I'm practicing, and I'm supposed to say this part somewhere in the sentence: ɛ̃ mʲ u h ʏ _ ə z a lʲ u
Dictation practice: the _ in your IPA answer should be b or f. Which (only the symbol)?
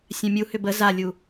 b